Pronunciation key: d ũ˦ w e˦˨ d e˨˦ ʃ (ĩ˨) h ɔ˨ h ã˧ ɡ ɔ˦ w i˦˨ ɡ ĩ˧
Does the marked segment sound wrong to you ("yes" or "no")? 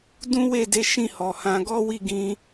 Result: yes